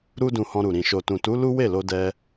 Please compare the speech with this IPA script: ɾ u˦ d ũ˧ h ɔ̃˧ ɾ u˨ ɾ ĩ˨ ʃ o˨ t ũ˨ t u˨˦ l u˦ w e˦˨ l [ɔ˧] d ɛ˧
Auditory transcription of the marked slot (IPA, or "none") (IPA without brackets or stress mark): o˧